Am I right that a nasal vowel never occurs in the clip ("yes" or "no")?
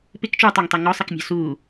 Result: yes